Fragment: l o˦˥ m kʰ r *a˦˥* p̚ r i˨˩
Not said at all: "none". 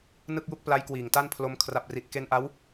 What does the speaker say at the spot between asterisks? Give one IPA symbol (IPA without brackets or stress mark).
a˨˩